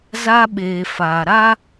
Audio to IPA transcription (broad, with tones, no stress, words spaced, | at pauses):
za˦ɓeː˨faː˨ ɾa˦